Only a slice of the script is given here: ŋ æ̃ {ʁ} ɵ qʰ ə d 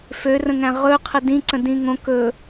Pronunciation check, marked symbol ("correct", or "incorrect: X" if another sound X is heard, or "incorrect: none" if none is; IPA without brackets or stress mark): correct